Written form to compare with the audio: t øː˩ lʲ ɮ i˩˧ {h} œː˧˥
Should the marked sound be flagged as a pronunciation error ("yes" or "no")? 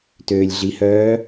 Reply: no